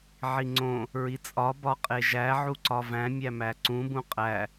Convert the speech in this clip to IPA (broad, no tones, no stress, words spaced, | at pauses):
ʕiŋ͡ǀõ | ɹit͡sʼɒ bɒqʼeʒæ ʕuǀɒvæ̃ mʲæmæǀũ bũqʼæ